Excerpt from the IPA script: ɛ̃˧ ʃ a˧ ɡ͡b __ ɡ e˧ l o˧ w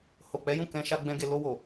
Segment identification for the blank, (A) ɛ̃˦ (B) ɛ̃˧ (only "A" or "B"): A